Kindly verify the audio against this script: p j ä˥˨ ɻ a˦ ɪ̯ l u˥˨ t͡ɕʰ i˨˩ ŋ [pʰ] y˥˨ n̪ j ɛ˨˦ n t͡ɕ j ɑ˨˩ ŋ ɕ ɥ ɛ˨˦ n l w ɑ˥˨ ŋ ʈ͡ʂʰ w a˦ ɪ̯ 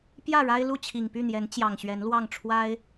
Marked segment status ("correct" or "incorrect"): incorrect